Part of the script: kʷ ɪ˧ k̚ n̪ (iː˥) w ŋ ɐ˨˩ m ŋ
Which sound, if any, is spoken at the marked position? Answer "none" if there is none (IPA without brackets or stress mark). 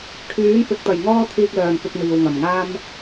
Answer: iː˨